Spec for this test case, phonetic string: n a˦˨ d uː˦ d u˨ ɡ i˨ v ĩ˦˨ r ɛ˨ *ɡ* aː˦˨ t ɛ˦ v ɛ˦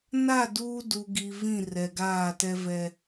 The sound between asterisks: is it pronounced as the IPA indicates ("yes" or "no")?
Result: yes